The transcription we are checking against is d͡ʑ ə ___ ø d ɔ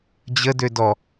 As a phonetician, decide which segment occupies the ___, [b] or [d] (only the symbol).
d